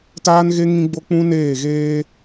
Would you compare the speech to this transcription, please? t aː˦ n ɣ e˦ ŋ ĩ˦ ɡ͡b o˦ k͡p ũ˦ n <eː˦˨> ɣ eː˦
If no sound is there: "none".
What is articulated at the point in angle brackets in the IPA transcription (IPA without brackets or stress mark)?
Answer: eː˦˨